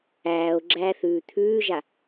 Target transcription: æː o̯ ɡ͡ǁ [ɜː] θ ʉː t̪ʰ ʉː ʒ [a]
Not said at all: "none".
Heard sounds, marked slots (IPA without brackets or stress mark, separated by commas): æː, a